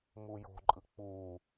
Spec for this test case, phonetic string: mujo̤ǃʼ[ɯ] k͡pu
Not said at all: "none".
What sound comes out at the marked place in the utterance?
ɯ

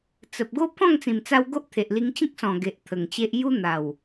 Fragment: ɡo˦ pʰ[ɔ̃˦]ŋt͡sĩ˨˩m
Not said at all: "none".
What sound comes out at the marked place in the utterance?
ɔ̃˥˧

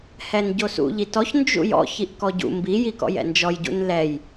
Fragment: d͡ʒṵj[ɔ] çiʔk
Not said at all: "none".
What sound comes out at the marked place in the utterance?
ɔ̰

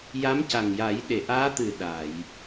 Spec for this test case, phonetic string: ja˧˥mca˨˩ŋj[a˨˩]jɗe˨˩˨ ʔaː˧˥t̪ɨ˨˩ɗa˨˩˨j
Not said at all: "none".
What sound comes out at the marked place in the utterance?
a˨˩˦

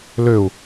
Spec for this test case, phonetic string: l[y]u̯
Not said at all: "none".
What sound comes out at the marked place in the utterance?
ø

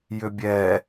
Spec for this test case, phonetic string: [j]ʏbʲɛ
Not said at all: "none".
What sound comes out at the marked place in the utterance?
j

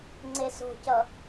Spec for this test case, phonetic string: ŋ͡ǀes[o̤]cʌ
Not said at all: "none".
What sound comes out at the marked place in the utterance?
o̤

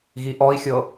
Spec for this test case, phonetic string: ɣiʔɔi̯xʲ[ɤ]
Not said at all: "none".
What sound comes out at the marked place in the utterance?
ɤ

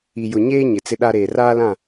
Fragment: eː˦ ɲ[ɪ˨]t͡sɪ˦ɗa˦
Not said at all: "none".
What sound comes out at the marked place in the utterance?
ɪ˨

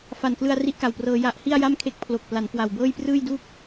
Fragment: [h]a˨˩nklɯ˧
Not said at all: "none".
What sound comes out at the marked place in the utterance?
f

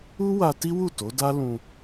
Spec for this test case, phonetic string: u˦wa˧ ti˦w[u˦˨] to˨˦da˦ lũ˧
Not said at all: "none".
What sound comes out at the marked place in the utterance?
u˦˨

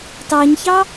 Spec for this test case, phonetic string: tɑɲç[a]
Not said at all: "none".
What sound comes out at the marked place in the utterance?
ɑ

